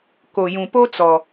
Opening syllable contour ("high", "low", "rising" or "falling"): low